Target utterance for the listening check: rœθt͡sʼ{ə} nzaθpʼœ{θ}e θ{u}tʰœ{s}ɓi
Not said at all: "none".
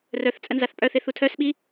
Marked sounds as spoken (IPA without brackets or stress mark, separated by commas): ə, θ, u, s